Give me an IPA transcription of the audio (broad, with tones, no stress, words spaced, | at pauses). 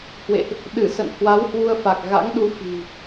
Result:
hwḛ˧˨ʔ | ɗɨ˧˩sə̰˧˨n hwa˨˦whwu˧ə̯fa˨˩k̚ ɣa̰˧˥ŋ ɗu˧ fi̤˨˩